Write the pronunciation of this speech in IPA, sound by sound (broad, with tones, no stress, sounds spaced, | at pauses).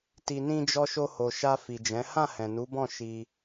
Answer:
t i˨ n ĩ˧ d͡ʒ ɔ˧ ʃ o˧ h o˨ ʃ a˧ f i˨ d͡ʒ ɛ̃˨˦ h ã˦˨ h ɛ̃˨ n u˨˦ b ɔ̃˦˨ ʃ i˧